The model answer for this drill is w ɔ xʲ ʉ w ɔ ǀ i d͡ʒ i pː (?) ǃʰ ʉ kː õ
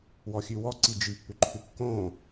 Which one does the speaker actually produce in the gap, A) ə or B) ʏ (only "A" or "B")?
B